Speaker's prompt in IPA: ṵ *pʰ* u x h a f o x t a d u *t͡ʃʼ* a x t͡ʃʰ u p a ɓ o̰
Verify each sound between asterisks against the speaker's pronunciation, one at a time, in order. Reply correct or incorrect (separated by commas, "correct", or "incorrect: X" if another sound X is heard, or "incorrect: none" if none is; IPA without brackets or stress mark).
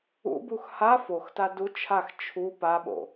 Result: incorrect: b, incorrect: t͡ʃʰ